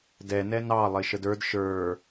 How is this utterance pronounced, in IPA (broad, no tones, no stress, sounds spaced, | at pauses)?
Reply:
d ɛ n ɛ n ɑ lˠ ɪ ʃ ə d ə˞ d ʃ ə˞